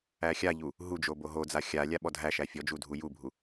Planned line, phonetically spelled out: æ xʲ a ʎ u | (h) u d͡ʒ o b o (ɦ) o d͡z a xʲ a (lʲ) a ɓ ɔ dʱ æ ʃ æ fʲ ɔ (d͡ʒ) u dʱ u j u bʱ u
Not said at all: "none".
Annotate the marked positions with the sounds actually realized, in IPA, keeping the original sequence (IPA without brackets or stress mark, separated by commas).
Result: ɦ, ɦ, lʲ, d͡ʒ